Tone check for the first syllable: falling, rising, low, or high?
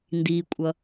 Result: low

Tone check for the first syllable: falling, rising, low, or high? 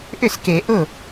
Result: falling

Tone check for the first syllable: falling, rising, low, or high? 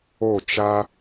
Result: falling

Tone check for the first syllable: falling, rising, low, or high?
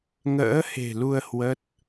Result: rising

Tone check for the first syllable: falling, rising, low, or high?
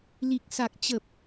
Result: low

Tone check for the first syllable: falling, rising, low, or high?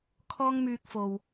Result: high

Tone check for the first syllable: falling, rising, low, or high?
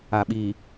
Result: low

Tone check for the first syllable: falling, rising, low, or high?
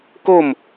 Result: falling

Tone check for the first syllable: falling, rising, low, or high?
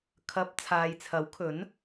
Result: rising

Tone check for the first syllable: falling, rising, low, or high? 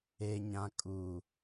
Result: low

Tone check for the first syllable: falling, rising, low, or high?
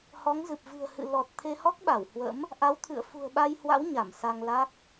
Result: rising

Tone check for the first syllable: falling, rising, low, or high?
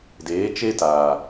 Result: rising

